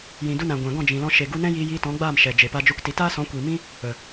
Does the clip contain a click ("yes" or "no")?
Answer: no